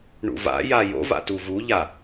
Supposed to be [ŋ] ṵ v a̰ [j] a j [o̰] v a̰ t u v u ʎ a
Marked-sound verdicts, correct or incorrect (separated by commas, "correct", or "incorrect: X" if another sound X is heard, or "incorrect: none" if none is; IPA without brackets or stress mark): incorrect: ɳ, correct, correct